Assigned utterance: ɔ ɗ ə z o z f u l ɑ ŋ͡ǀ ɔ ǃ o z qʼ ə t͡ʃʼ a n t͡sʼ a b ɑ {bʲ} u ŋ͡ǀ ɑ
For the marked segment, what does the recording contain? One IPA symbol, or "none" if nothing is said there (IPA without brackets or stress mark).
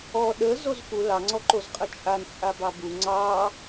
b